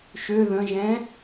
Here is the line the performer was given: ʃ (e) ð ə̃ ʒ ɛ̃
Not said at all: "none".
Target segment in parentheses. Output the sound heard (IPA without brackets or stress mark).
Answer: ø